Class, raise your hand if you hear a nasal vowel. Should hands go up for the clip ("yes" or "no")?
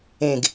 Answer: yes